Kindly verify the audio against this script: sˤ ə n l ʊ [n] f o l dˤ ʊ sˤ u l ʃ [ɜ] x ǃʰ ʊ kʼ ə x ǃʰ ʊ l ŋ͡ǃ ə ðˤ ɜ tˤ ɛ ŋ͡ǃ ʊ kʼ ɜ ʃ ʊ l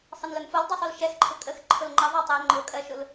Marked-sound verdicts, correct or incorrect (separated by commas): correct, incorrect